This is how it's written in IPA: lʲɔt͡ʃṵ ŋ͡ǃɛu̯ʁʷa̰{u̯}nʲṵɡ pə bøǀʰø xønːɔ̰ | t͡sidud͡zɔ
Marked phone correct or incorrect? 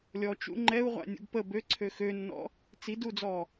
incorrect